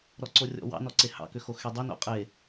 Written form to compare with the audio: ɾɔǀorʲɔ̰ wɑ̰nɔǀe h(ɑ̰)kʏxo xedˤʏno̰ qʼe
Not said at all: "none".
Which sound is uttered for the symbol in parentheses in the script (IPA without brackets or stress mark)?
ɑ̰